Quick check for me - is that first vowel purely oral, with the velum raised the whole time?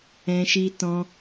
no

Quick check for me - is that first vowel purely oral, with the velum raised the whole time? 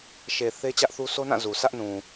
yes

